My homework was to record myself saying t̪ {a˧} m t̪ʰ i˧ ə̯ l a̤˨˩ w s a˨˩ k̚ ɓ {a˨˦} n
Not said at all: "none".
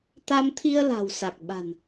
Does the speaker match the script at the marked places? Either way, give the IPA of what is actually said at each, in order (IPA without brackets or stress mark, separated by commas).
a˧, a̤˨˩